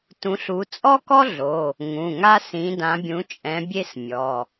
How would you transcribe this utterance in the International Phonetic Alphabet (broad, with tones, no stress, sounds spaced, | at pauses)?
t ũ˨˦ ɬ u˨˦ t͡sʼ ɔ˥ k ɔ˥ ɮ o˩˧˩ | ŋ ũ˩˧˩ ŋ a˥ s ĩ˨˦ d ã˨˦ bʲ ũ˨˦ t͡ʃʼ ɛ̃˨˦ bʲ e˥ s mʲ ɔ˩˧˩